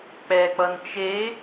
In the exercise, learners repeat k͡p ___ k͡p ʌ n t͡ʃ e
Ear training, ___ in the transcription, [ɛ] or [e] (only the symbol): ɛ